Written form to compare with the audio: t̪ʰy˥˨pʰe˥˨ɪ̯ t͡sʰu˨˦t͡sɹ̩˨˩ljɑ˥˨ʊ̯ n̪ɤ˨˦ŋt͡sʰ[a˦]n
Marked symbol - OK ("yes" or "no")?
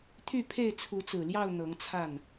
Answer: no